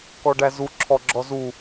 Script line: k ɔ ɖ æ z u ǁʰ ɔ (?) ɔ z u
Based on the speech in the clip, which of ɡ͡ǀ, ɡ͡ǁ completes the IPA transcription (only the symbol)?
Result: ɡ͡ǁ